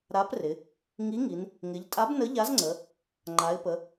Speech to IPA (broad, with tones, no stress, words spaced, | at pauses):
ɾa˨˥prɪ˩˧ | ŋi˨˥ŋi˩˧n | ŋɪ˩˧ʎtʼa˨˥b nə˨˥ʎa˨˥zŋ͡ǀə˩˧ | ŋ͡ǃa˩˧ɪ̯pə˩˧